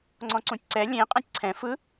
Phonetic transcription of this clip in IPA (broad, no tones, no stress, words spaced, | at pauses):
ŋ͡ǀɔ̃ǀũtʲǀɛ lʲẽ qʼɛ̃tʲǀʰɛ̃ fɯ